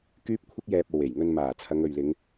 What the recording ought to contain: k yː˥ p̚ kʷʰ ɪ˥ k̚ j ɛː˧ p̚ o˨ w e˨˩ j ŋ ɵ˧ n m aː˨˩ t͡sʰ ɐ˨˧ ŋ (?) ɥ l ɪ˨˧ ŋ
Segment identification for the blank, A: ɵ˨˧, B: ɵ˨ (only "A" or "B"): B